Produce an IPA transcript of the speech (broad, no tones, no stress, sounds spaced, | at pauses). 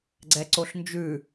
ɡ͡ǀ ɛ ǀ o ɬ n d͡ʒ ʉ